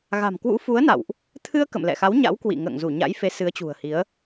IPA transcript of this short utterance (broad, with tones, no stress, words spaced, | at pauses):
ɣa̤˨˩mkwṵ˧˥fu˨˦ə̯na̰˧˨wʔ | t̪ʰɨ˧ə̯ kə̰˧˨mlɛ̰˧˨xa˨˦w ɲa̰˧˥wkwḭ˧˨ ŋə̰ː˧˨ŋzu˧˩ɲa̰˧˥j fe˨˦sɨ˨˦ə̯t͡ɕṳ˨˩ə̯hi˨˦ə̯